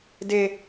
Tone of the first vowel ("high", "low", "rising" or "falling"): high